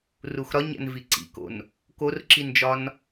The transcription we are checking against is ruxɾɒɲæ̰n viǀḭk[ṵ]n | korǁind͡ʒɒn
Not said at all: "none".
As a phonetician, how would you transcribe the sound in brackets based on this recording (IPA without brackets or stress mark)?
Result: o̰